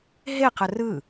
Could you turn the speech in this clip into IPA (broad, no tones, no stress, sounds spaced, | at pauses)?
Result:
ɦ e q ə r ɯ